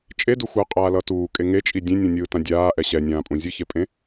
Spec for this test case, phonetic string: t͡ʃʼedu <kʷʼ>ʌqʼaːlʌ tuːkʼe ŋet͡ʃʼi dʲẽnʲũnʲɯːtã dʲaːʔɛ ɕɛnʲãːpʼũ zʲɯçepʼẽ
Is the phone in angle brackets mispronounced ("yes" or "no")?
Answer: yes